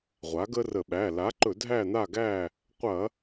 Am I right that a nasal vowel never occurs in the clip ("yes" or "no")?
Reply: yes